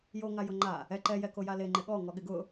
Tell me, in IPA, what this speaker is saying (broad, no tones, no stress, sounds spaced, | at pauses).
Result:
j o ŋ a j ʊ ŋ͡ǃ a | ɛ ǃ ɛ j ɛ k o j a l e ŋ͡ǃ ɪ ɠ ɔ ŋ ɔ ɠ ɪ ɡ ʊ